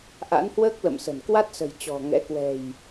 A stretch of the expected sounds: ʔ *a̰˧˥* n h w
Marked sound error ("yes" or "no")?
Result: no